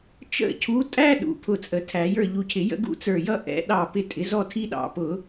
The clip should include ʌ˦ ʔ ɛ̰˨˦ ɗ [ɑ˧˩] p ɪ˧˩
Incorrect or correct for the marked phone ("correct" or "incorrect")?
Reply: correct